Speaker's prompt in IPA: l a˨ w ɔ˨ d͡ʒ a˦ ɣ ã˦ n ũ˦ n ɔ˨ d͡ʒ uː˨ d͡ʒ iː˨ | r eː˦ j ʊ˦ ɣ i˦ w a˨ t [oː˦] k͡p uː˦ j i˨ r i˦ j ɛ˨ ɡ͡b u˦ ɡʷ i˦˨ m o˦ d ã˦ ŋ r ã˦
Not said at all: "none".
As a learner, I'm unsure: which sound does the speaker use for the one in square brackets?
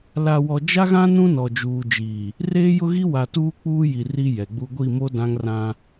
uː˦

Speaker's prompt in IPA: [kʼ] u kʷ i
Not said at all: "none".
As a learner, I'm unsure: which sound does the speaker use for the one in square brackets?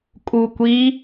kʼ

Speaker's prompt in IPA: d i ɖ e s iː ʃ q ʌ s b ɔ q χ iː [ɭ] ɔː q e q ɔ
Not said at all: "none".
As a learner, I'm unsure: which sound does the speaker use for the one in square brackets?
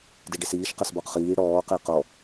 ɽ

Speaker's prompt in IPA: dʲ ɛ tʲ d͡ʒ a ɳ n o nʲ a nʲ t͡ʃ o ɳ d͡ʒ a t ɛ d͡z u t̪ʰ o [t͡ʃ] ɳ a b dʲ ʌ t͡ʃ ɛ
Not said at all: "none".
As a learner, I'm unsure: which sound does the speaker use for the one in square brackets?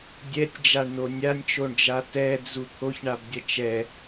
ç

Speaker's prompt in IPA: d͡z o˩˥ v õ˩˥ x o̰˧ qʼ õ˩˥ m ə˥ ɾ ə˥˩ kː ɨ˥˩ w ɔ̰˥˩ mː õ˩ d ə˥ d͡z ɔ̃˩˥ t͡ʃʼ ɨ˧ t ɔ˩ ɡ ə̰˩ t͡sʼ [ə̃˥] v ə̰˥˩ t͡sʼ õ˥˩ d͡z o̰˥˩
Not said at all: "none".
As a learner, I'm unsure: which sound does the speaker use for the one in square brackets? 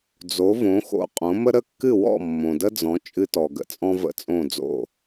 ɔ̃˥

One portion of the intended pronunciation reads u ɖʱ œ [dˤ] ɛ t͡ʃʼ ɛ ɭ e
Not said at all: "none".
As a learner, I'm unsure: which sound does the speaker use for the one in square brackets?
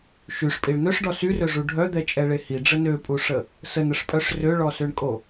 d̪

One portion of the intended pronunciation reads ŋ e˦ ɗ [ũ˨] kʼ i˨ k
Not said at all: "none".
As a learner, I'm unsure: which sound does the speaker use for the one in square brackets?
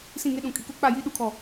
ũ˨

